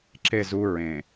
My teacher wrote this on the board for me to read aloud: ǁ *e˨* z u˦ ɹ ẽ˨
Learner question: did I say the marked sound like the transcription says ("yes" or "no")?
no